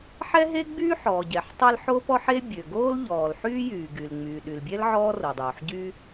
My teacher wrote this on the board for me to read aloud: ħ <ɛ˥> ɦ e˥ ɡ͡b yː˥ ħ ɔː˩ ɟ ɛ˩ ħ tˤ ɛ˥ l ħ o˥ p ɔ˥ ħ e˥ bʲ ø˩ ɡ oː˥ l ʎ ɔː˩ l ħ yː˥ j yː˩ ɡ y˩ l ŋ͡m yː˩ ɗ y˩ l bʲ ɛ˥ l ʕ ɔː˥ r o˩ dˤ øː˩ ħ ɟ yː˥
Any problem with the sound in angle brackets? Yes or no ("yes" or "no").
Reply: no